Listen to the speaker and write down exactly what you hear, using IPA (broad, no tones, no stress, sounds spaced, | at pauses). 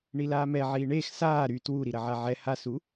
ɳ i l aː m ɛ ʕ iː ɳ eː x s aː ɾ y t w u ɾ i ɾ ɐ ʕ a ʕ ɛ h a s u